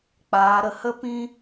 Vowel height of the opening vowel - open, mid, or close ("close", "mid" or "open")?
open